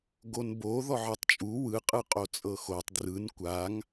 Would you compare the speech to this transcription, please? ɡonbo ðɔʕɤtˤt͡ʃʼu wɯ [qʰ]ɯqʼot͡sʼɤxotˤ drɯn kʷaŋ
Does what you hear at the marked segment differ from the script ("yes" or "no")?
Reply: yes